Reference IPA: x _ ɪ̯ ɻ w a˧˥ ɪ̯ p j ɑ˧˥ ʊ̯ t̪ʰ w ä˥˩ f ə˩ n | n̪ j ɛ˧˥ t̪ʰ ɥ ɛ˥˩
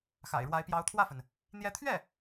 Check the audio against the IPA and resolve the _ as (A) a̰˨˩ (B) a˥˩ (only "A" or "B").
A